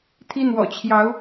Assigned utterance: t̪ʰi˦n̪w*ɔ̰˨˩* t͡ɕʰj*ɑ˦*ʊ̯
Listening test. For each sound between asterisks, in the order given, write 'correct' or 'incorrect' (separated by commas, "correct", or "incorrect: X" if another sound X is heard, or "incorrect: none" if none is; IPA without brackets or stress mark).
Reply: correct, incorrect: ɑ˨˦